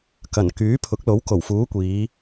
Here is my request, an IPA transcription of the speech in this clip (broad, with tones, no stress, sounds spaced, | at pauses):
k ɐ˨˩ n k yː˨˥ pʰ ʊ˨˥ k̚ l o˨˥ w k o˨˩ w f uː˨˥ kʷ iː˨˧